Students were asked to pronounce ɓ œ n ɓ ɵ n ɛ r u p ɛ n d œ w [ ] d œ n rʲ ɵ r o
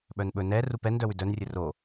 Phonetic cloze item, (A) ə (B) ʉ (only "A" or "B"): B